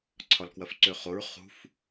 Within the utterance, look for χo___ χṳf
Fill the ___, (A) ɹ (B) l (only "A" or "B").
A